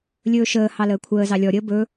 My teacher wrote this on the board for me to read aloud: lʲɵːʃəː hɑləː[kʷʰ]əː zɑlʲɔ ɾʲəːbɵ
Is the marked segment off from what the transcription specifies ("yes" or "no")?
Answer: no